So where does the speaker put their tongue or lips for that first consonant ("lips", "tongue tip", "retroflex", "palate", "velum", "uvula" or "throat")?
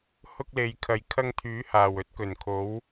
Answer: throat